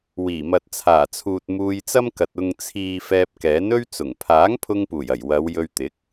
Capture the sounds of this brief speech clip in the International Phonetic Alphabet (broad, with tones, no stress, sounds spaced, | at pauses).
w iː˨˩ m ɐ˨ t̚ t͡sʰ aː˨˩ t͡sʰ uː˨ t̚ m uː˧ j t͡s ɐ˥ m k ɐ˨ t̚ ʊ˨ ŋ t͡sʰ iː˨ f ɛː˧ p̚ k ɛː˨˥ n ɵ˥ ɥ t͡s ʊ˨˩ ŋ pʰ aː˨˥ ŋ pʰ ʊ˧ ŋ p uː˨˩ j ɐ˨˩ j w ɐ˨˧ w j ɵ˧ ɥ t̪ ɪ˨˥ k̚